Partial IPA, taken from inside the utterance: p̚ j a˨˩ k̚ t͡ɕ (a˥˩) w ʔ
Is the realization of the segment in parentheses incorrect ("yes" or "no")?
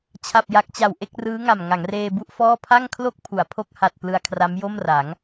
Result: yes